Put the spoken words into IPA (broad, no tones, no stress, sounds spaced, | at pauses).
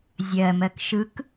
zʲ ɜ m ɜ k ʃ ɯ k